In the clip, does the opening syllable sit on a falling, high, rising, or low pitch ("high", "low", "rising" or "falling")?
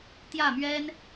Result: falling